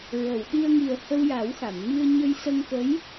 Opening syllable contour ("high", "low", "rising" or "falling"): low